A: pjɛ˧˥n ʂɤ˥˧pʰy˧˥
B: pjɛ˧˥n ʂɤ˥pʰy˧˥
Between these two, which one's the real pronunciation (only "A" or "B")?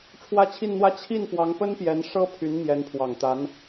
B